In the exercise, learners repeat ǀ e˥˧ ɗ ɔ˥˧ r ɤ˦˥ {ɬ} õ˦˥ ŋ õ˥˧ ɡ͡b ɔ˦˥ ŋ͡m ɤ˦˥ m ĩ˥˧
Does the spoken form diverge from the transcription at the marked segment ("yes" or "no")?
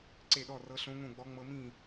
no